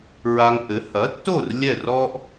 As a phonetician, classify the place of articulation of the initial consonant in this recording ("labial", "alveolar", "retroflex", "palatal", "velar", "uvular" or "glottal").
alveolar